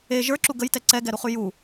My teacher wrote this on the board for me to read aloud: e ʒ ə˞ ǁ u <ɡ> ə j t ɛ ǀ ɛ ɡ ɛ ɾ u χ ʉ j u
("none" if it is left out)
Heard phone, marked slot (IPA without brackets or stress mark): ɡ